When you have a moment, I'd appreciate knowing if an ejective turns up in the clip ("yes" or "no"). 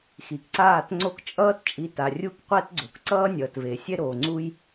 yes